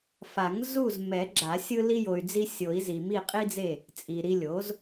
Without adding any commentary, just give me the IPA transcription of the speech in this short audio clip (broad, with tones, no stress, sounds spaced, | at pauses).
f a˨˩˦ ŋ z u˦˨ z m ɛ˨˩˦ ɡ͡ǁ a˨˩˦ sʲ ɯ˦ l i˦ j o˨ y̯ d͡z i˦ sʲ o˨˩˦ i̯ z i˨ m i˦˨ qʼ i˦ d͡z e˦˨ | t͡sʼ i˨ ɾ i˦ lʲ o˩˥ z